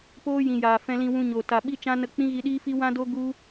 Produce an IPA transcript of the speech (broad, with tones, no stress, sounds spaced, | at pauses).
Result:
p oː˦ j ĩ˨ j aː˨ f ɛ̃˧ l ĩ˧ w ũ˧ ɲ oː˨ t a˨ ɓ i˦ t͡ʃ ã˦ n ə˧ k͡p ĩ˦ ɣ i˧ ɗ iː˦ f i˦ w ã˦ d o˦ ɡ u˦